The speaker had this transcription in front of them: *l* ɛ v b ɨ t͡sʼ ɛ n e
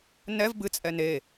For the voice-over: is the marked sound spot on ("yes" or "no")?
no